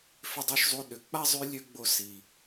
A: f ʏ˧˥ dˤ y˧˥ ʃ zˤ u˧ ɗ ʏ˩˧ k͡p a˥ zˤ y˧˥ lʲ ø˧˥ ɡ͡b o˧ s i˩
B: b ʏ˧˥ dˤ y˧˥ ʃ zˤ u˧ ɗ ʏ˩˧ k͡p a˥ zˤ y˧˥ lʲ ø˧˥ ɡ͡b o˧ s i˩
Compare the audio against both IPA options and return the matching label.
A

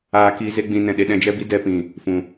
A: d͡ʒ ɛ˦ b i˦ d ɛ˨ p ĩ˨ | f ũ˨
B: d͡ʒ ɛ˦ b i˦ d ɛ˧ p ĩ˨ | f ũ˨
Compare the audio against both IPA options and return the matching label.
B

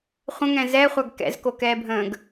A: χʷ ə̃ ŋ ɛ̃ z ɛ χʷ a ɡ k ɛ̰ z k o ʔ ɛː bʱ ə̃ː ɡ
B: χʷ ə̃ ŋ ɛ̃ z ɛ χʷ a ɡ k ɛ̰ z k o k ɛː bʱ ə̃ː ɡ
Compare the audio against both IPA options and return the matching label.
B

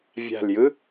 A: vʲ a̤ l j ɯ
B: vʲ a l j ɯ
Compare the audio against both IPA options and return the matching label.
A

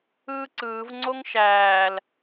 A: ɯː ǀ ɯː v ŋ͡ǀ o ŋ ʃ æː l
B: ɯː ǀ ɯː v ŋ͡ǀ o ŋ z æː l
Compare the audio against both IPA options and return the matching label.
A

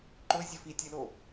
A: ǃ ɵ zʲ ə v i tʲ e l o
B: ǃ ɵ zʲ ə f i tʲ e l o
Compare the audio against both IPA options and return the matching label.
B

